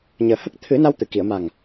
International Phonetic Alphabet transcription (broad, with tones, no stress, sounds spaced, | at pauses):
ɲ əː˨˩ h ə˦˥ k̚ t̪ʰ ɨ˨˩˦ n a˧ w t̪ ɨ˨˩˨ k i˨˩˨ ə̯ m a˨˩ ŋ